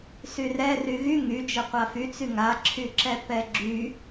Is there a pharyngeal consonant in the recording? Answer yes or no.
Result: no